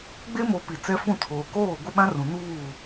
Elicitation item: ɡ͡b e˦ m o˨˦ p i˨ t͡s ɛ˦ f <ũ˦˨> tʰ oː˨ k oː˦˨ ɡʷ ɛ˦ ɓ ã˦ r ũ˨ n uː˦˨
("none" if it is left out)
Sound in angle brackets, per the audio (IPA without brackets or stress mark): ũ˦˨